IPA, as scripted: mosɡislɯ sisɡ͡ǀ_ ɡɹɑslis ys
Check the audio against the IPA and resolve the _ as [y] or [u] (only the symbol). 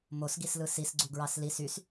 u